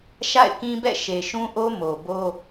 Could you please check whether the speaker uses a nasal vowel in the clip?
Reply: yes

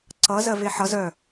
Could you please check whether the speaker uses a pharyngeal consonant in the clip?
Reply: yes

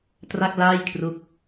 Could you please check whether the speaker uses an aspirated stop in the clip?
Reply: yes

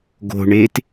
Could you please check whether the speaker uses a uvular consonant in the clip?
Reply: no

